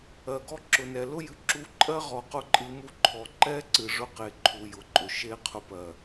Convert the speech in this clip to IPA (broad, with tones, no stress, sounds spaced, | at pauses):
ɜ˨ ɡ ɔ˦ ǁ ʊ˨ n ɛ˨ l ʊ˦ j ɨ˨ ǁ u˧ ǃʼ ɜ˦ ʁ ɔ˧ q ʊ˦ ǃʼ ɨ˧ m u˦ ǃʰ ɔ˨ ǃ ɛ˦ ǀ ɨ˨ ʐ ʊ˧ q e˨ ǃʰ u˨ j ʊ˨ ǃʼ ʊ˨ ʃ e˦ qʰ ʊ˧ p ɜ˨